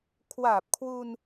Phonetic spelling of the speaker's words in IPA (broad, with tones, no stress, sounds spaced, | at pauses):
kʰ w aː˨˩ p̚ kʰ w u˧ n